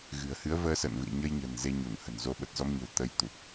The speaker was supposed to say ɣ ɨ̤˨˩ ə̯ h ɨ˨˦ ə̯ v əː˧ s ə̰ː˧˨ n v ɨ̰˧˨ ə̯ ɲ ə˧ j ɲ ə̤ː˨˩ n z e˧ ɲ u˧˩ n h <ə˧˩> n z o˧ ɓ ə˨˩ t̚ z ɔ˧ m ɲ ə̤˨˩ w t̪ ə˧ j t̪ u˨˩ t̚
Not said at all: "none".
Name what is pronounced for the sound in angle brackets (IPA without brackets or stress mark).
ə̤˨˩